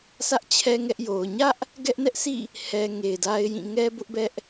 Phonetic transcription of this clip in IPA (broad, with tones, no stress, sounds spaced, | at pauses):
sʰ ä˦ ʔ t͡ɕʰ ɛ˦ ŋ ɛ˦ ʔ j o˨ ʊ̯ ɲ ä˦ ʔ | ɡ ɛ˦ ʔ n ɛ˦ ʔ s ḭ˦˨ | h ɛ˨ ŋ e˨ ɪ̯ d a˦ ɪ̯ j ĩ˦˨ ŋ ɛ˦ b ʊ˦ ʔ b ɛ˦ ʔ